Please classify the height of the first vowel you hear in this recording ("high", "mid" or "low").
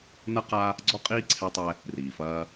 low